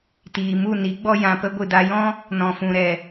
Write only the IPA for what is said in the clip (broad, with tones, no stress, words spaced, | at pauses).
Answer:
tiː˨ mu˦˨ni˨˦ɡ͡bɔ˦ jã˧pə˦ ɡʷɨ˨da˧jɔ̃˦ | nɔ̃˨fũ˨ ɾɛ˨